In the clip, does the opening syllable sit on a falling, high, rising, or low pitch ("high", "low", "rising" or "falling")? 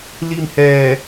falling